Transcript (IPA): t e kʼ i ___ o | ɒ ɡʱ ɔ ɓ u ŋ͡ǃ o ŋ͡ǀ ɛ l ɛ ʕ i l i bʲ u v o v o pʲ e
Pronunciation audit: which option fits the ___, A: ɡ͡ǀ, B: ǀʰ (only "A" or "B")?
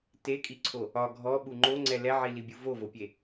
B